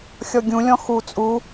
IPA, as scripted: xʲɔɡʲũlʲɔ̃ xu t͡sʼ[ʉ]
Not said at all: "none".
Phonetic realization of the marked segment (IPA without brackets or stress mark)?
u